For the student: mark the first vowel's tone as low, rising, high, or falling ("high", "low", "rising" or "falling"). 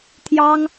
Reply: high